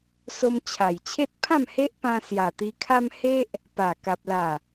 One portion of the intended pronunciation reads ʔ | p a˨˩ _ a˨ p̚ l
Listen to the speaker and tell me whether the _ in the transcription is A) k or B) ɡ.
A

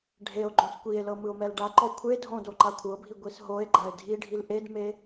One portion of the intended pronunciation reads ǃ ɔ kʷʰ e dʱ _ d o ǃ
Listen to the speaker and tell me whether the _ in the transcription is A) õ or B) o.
A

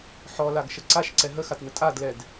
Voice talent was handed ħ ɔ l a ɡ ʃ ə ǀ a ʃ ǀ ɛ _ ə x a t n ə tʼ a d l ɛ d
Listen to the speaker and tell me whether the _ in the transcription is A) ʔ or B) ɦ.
B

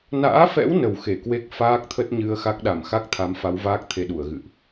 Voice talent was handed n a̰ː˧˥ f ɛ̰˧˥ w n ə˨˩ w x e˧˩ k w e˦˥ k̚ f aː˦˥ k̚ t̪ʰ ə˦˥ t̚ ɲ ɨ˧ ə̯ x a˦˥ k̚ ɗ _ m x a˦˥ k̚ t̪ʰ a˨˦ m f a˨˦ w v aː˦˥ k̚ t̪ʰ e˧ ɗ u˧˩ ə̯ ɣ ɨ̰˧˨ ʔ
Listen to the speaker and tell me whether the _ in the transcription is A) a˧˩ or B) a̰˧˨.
A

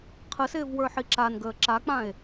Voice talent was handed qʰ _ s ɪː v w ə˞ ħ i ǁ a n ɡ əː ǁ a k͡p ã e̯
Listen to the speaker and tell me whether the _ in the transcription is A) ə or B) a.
A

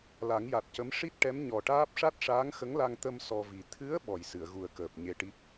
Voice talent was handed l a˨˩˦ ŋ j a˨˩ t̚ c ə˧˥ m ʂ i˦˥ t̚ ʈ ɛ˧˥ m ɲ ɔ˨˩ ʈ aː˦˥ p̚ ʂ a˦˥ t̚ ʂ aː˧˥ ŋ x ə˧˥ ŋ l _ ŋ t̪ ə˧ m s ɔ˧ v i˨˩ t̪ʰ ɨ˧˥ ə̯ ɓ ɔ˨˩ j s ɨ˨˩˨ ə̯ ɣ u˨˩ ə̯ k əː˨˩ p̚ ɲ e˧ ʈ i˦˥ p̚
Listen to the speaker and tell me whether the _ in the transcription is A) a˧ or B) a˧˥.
A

